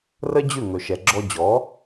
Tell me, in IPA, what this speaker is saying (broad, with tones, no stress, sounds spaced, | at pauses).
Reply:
r ə˥ d͡ʑ ʉ˥˩ ŋ ɵ˩ ʃ ɛ˩ ɡ͡ǁ ɔ˧ d͡ʑ ɔ˩˥